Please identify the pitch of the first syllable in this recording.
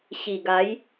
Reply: low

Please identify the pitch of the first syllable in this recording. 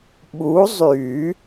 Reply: rising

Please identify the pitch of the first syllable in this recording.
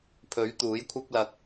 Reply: rising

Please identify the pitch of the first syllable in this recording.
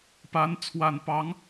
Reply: rising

